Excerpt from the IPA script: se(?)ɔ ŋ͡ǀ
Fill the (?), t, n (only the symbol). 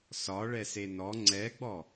n